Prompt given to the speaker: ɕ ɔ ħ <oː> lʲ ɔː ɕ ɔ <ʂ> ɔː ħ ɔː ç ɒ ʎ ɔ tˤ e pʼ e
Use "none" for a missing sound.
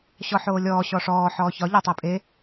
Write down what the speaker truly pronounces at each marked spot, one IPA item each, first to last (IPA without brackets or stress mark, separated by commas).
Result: oː, ʂ